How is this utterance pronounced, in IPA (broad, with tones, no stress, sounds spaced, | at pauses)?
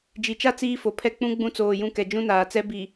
d͡ʒ i˨ t͡ʃ a˦ t͡s iː˦ f o˨ pʰ ɛ˦ k͡p ũ˦ ɡ͡b ũ˦ t͡s oː˨ j ũ˦ k ɛ˨ d͡ʒ ũ˦ n aː˨ t͡s ɛ˦ b i˨